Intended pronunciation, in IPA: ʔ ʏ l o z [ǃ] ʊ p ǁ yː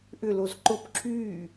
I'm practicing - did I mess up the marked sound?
no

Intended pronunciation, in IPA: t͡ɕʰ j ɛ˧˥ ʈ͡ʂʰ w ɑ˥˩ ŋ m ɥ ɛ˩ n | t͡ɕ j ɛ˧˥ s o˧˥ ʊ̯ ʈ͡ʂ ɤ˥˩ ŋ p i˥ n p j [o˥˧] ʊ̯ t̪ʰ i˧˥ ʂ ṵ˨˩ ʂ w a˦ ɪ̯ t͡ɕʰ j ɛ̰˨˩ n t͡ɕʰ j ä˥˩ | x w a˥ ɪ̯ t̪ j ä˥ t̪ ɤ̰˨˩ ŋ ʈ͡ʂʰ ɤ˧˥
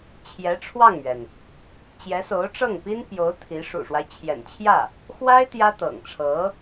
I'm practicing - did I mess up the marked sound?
yes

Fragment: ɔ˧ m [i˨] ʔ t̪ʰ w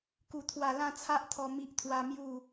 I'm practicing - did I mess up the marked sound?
yes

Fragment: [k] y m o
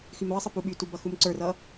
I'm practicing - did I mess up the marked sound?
yes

